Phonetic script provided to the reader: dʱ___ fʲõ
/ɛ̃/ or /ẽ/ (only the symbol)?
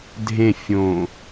ẽ